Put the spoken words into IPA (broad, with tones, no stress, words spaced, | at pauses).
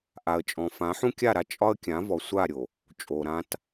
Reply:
ʔa˨ə̯t͡ʃʼɔ̃˨ fã˨˦ħũ˦kʲa˦˨ɾa˦ t͡ʃʼɒ˦ə̯ kʲã˨˦ vɔ˨sʷa˦˨ ɾʲo˨ | t͡ʃʼo˨ɾã˦t